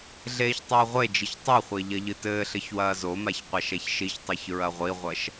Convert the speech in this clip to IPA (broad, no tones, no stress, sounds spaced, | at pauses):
ɮ eː ç tˤ ɘː ʁʷ e d͡ʒ i ç tˤ ɛ χʷ e ʎ ɐ ʎ ɨ t ɘː ɬ ɘ ç w ɐː z o m a ç qʷ a ʃ ɛ ç ʃ i ç tˤ i ç ɹ ɐ ʁʷ i ʁʷ ɐ ʃ